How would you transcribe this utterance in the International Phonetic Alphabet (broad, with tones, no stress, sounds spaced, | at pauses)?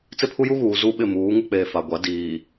t͡s ɪ˦ pʰ u˦ j u˦ ɣ uː˨ z u˦ ɓ ɪ˦˨ m uː˨˦ ŋ u˦ k͡p eː˨ f a˨ ɡʷ a˨˦ d iː˨